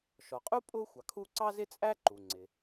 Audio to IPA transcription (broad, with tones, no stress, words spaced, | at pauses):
ʃɔ˩qʼu˥ pʼʊ˥ xʷɑ˩kʰu˥ ǀɑ˥zɪ˥t͡sʼæ˥ ǃu˩ŋ͡ǀɪ˩